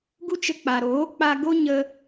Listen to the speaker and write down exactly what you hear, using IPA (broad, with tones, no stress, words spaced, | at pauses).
ɡu˦t͡ʃə˧k͡pa˨ ɾoː˨˦ k͡pa˧ɡo˦ ɲə˧